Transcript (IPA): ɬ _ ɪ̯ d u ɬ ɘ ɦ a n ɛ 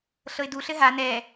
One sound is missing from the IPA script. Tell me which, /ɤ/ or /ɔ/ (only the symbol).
ɤ